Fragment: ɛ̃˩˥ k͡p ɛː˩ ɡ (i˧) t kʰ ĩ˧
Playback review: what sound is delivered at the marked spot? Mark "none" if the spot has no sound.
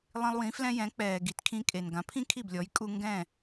i˩˥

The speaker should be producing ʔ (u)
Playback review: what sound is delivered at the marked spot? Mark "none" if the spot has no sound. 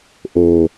o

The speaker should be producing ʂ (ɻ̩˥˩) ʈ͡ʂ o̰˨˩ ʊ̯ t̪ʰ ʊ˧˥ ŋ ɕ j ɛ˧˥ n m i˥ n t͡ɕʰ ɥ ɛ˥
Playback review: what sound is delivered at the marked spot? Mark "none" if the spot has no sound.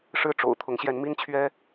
ɻ̩˥˩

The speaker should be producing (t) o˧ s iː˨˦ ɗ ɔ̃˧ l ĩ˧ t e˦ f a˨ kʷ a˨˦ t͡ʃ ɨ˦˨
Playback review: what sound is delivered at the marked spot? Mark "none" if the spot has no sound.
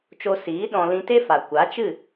t͡ʃ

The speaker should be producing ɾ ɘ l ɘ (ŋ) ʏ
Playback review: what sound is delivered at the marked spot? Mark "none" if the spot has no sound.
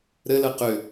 q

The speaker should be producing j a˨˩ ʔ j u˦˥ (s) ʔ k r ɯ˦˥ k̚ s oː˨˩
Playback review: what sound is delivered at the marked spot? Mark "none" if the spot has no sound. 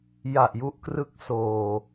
none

